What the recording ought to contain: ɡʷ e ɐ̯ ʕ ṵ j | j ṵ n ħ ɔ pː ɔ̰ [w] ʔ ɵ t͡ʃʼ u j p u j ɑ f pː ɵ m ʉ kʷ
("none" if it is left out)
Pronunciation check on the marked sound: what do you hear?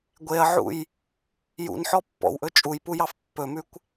w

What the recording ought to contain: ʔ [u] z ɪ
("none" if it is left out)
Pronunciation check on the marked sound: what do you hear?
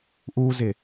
u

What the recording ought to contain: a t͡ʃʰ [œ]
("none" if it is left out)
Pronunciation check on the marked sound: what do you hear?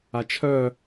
œ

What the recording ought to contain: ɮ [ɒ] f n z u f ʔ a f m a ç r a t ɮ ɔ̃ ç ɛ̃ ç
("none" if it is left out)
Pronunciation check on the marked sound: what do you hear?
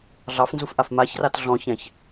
ɑ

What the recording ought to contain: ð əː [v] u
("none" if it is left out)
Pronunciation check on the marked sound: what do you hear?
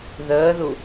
ð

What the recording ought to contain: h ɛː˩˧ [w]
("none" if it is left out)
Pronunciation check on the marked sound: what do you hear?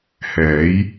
j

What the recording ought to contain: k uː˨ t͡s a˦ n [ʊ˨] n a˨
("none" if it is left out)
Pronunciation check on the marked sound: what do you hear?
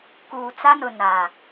ʊ˨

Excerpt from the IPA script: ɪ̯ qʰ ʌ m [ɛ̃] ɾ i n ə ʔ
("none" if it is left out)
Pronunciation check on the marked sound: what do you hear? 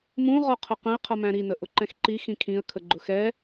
æ̃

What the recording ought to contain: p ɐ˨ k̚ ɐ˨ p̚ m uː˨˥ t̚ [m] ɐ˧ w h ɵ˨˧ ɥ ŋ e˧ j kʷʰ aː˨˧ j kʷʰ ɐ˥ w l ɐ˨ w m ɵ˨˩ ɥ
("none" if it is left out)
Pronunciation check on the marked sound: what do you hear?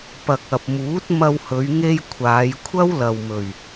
m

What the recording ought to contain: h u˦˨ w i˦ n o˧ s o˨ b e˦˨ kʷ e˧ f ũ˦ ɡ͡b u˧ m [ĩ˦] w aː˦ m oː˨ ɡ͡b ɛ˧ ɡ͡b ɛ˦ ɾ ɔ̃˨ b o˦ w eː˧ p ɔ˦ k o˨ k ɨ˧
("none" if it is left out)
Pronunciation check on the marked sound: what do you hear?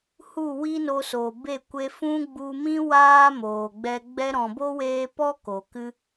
ĩ˦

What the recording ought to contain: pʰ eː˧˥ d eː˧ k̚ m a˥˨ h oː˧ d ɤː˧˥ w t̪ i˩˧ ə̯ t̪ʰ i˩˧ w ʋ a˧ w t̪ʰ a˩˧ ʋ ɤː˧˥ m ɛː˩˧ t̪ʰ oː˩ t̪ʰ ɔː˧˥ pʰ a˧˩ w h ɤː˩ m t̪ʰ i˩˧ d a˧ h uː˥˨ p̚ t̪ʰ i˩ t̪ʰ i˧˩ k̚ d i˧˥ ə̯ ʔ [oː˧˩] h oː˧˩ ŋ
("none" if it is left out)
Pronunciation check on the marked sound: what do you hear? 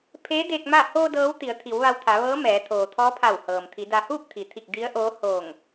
oː˧˥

